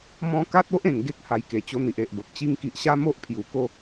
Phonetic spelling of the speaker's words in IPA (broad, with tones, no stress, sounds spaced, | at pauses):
m ɔ̃˦ k a˦ t̚ o˦ ʔ ẽ˨˩ ŋ ɡ e˦ k̚ h a˧ j k e˨˩ t͡ɕ o˦ n̪ i˨ ʔ e˨ ʔ b ə˨ p̚ t͡ɕ i˧ ŋ k i˨ ʔ ɕ a˦ m o˦ ʔ pʰ j u˨˩ k o˥˧